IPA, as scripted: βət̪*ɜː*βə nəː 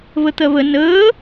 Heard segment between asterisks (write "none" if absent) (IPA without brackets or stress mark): ɜ